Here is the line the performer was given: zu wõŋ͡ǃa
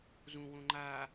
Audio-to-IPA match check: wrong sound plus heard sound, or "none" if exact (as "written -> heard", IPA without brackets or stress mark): u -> ũ